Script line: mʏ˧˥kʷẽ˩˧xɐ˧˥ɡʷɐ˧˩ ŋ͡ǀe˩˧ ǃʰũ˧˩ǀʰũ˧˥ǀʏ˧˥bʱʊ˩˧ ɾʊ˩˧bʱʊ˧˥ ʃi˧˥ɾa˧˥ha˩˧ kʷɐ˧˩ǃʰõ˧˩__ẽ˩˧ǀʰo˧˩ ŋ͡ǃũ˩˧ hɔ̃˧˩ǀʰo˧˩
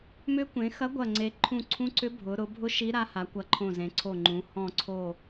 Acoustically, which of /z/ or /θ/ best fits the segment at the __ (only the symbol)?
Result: z